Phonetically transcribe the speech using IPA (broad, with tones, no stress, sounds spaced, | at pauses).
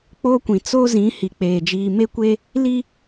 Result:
k͡p oː˦ kʷ ĩ˨ t͡s o˦ z ĩ˨˦ h i˨ k͡p eː˨ d͡ʒ iː˨ m e˦ kʷ e˦ | l i˦